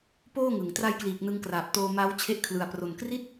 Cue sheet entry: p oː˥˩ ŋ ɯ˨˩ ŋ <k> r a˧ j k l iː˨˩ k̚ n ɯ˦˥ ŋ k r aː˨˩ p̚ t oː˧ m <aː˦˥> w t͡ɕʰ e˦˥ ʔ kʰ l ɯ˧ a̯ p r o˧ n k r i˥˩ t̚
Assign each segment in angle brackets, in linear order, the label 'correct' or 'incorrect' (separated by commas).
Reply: incorrect, correct